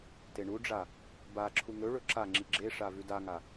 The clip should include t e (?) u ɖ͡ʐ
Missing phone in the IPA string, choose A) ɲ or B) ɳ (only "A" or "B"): B